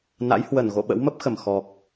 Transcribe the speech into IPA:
n a̰˧˥ j h w ə˧˩ n ɣ o̰˧˨ ɓ ə̰˧˥ w m ə˦˥ p̚ x ə˧˩ m x ɔ˨˩ k̚

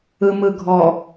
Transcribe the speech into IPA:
ɯ m ɯ ɡʱ ɔ

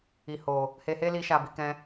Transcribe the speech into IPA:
i˨ h o˨ | h e˧ h e˦ l i˧ ʃ a˨ b i˨ k ɛ̃˧

